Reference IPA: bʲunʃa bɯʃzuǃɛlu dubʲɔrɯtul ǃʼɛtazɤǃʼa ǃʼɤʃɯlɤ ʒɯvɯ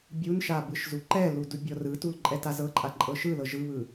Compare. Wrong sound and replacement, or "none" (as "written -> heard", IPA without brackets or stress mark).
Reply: v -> β